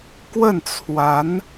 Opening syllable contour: falling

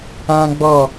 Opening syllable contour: high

